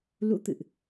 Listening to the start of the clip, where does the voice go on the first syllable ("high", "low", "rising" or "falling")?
rising